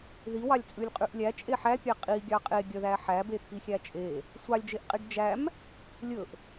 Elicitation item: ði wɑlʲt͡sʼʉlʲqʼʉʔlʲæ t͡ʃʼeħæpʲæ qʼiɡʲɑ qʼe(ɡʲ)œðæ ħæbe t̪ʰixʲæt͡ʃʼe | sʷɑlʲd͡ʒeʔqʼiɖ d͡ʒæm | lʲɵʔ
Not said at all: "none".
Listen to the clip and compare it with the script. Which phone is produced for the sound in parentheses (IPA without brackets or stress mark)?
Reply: ɡʲ